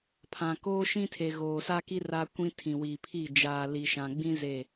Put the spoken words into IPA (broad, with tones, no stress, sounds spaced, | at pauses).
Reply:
pʰ ã˨ k oː˦ ʃ ĩ˦ tʰ e˨ ɣ oː˨ s a˦ k i˦ r a˦ kʷ ĩ˦ tʰ ĩ˨ w i˨ pʰ i˦˨ d͡ʒ aː˨ l i˨ ʃ ã˨ ɡ͡b ĩ˦ z e˦˨